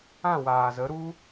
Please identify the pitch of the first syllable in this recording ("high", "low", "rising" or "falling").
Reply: falling